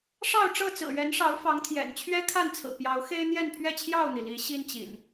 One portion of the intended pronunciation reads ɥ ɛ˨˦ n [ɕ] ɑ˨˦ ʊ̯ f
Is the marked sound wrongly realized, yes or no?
yes